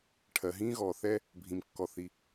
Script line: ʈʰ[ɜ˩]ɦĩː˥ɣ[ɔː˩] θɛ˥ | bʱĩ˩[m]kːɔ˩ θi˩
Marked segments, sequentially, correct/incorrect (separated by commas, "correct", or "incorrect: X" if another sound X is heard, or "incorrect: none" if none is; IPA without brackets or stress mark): correct, correct, correct